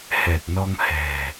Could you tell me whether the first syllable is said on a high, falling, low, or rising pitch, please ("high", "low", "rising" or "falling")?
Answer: low